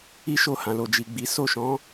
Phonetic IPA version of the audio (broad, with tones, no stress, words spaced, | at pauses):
i˦ʃo˦˨ hã˨lo˨ d͡ʒi˨ɡ͡bi˨˦ so˦˨ʃɔ̃˨˦